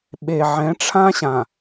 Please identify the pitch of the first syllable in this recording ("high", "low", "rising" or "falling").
low